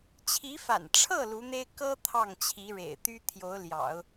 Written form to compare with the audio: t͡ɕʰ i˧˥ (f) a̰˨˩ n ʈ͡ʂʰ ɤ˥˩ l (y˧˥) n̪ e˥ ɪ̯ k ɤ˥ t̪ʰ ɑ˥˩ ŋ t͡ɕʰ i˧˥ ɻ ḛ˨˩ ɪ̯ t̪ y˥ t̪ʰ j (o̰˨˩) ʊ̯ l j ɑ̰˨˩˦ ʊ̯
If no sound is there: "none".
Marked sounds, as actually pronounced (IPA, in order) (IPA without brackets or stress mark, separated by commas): f, u˧˥, o˧˥